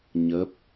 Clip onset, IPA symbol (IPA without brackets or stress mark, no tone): ɲ